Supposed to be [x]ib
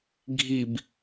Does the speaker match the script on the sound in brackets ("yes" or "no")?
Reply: no